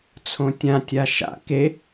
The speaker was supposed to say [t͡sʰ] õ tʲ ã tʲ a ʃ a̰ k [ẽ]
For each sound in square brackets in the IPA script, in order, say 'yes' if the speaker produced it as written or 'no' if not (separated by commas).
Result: yes, no